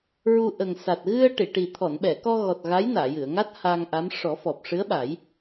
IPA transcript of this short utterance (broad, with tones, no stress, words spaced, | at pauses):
ɹu˧ ʔə˨˩ŋ sa˨˩t̚ ɣɨ˧ə̯ ʈi˨˩˨ ʈi˨˩ t̪ʰɔ˨˩˨nɓɛ˨˩˨kɔ˧ɣɔ˨˩t̚ ɣa˧˥j naː˨˩˨jɨ˨˩˨ə̯ŋa˦˥t̚ haː˧ŋʔa˧˥m ʂɔ˨˩˦fɔ˨˩p̚ ʂɨ˧˥ə̯ɓa˨˩˦j